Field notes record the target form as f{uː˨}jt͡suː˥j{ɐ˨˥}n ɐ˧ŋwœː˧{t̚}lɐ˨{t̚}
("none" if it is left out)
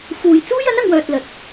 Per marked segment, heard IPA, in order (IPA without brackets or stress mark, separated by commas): uː˨, ɐ˨˥, t̚, t̚